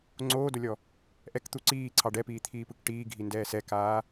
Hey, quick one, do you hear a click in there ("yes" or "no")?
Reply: yes